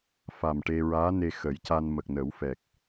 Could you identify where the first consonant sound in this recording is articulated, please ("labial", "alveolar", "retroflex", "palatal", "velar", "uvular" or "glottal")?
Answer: labial